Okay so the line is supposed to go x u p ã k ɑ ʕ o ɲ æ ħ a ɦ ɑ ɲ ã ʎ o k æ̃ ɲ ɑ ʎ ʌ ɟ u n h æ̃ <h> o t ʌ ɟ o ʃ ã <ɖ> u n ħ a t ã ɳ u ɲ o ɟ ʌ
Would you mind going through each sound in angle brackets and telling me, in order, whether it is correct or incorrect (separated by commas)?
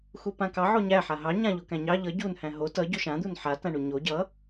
incorrect, incorrect